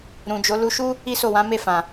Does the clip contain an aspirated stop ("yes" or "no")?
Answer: no